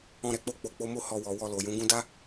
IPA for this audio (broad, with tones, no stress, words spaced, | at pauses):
ɔ̃˧ɾɛ˧k͡po˧ k͡po˨k͡po˨˦mo˦˨ hɔ˧wɔ˨ wɔ˧lo˨jũ˨˦ ɡũ˧da˦